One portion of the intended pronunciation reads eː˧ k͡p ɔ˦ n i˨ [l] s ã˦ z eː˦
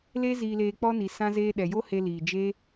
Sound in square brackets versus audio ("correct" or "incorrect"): incorrect